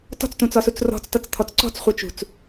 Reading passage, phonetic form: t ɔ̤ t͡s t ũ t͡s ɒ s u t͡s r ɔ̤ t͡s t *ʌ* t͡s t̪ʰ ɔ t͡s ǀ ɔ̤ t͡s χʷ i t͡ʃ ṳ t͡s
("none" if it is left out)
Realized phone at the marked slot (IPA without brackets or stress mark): ʌ